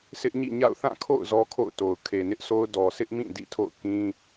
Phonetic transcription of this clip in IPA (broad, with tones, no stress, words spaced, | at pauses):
sʰɪ˦ʔɲḭ˦˨ɲa̰˦˨ʊ̯ θã˦˨kʰo̰˦˨ʊ̯ zɔ˦kʰo̰˦˨ʊ̯to˨ʊ̯ kʰe˨nɪ˦ʔso˦ʊ̯ dɔ˨sʰɪ˦ʔmĩ˦˨ dḭ˦˨tʰo̰˦˨ʊ̯ kĩ˦